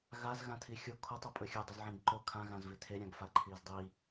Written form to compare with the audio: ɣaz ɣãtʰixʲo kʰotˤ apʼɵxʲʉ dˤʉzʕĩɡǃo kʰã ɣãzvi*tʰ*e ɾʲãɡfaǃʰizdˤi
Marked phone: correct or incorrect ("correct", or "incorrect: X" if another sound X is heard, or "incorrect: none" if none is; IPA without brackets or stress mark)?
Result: correct